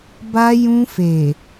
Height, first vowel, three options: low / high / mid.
low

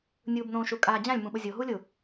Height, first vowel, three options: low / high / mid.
high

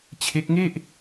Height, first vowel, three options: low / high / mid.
mid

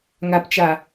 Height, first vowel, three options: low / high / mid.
low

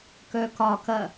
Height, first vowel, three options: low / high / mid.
mid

